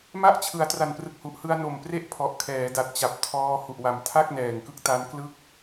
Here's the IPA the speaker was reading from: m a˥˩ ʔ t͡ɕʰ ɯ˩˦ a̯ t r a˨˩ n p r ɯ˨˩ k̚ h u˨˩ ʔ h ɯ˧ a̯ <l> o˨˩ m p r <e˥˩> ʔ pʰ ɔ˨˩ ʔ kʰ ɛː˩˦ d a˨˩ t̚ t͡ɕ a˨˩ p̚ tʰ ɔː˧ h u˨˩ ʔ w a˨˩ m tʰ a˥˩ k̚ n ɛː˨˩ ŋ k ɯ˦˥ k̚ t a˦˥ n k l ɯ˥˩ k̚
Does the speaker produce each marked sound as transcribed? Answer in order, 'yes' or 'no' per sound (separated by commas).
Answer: no, yes